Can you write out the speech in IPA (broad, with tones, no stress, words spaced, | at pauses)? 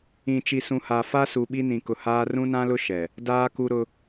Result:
ĩ˨ t͡ʃi˨sũ˨ha˨ fa˦su˨ ɓi˦nĩ˨kʊ˨ haː˦ rũ˦nã˦lʊ˦ ʃɛ˨ | daː˦ku˦ɾʊ˦